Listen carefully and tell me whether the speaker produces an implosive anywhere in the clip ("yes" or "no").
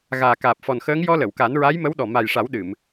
yes